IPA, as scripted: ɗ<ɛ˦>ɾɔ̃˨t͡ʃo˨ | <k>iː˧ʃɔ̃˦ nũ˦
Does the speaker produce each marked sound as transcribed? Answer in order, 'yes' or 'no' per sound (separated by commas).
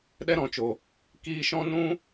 yes, yes